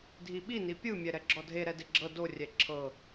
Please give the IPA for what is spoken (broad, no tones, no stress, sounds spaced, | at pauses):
dʱ i ɓ i n i pʲ ɯ mʲ ɛ ɾ ɛ ɡ͡ǁ ɔ dʱ e ɾ ɛ d e ɡ͡ǁ ɤ d o rʲ ɛ ǁʰ ɤ